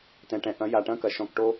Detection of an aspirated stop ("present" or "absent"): absent